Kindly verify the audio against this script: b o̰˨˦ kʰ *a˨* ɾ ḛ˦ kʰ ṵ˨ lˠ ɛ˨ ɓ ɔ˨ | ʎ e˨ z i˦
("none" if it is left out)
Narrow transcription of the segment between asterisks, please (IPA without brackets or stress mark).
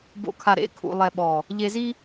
a˨